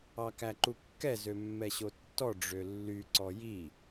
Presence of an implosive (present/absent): absent